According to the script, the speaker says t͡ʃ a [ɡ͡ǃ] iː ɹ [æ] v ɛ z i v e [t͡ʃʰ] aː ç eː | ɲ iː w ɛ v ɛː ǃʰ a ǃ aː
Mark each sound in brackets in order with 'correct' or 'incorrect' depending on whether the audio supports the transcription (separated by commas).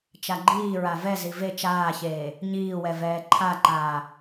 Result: correct, incorrect, incorrect